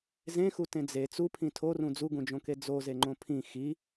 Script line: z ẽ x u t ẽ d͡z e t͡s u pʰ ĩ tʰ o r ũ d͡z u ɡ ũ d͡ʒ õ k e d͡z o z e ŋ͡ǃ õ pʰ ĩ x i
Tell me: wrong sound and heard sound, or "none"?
none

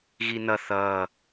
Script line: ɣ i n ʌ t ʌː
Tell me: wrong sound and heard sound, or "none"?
t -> θ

